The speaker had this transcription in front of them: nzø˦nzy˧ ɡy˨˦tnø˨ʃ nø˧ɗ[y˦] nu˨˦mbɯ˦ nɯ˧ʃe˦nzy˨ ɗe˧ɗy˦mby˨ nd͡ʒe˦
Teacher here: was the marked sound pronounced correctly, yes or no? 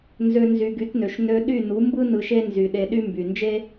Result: no